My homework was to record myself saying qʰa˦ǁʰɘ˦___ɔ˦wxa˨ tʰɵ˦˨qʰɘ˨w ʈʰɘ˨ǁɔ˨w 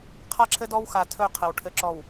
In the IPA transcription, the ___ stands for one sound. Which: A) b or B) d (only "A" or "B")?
B